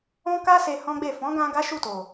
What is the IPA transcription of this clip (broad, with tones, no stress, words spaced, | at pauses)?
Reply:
ɔ̃˦ka˦ se˧hɔ̃˦ɡ͡be˦˨ fɔ̃˨˦ɡã˧ ɡa˦ʃu˦˨to˨